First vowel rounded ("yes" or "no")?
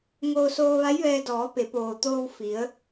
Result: yes